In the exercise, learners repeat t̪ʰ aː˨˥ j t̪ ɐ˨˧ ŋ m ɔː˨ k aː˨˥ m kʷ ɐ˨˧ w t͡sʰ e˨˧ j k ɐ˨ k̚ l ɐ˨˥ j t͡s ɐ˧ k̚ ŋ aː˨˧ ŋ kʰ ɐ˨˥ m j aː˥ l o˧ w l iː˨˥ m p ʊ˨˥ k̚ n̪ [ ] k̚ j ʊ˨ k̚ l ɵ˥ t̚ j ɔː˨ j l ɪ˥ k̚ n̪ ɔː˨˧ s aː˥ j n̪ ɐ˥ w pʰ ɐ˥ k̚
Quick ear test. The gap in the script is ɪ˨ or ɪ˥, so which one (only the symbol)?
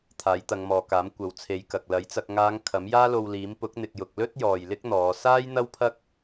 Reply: ɪ˨